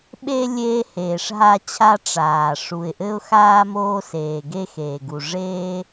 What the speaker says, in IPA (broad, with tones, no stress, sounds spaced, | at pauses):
ɓ e˧ lʲ eː˧ h eː˩ ʂ ɦ a˧ t͡ɕʰ a˧ ʈ͡ʂ aː˩ ʂ u˩ ɪ̯ ʔ ɘ˧ ʊ̯ x aː˧ m oː˧ s eː˩ ɡ e˧ x eː˩ ɡ u˩ ʐ eː˧